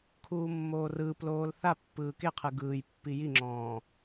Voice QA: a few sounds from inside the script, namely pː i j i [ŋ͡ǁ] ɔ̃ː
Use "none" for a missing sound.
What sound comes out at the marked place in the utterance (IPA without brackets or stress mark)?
ŋ͡ǁ